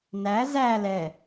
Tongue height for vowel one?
low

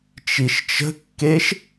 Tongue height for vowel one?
high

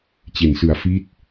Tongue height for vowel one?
mid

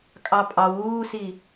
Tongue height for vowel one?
low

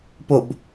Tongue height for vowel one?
mid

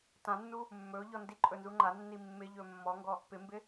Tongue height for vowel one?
low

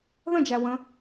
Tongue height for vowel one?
mid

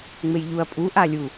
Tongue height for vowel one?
mid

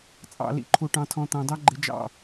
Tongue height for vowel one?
low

